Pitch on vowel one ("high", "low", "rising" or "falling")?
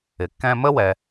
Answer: low